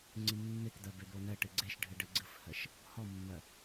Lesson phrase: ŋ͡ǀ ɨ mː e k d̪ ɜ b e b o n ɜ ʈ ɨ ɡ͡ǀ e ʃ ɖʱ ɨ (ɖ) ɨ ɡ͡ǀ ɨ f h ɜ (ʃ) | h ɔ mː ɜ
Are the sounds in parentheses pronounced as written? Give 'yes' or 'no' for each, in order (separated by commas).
yes, yes